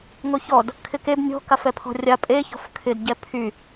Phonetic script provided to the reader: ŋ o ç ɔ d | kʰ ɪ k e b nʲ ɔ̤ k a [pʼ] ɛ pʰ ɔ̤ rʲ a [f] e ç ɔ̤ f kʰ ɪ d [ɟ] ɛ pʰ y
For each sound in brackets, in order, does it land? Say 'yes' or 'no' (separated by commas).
no, no, yes